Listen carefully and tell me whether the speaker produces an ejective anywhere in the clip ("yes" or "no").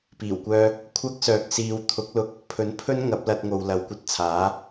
no